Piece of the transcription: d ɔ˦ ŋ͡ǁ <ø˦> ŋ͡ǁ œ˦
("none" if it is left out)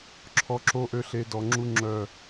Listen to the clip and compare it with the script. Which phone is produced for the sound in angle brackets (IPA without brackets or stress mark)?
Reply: u˦